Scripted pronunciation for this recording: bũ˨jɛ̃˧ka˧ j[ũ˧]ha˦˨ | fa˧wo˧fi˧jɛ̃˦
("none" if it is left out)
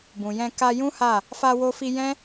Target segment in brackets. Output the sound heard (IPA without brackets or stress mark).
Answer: ũ˦